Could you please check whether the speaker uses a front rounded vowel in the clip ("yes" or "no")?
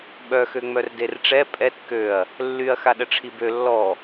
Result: yes